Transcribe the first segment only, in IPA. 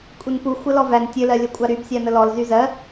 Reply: kʷʼ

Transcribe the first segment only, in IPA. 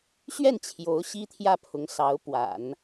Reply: ɕ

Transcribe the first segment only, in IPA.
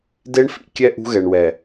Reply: d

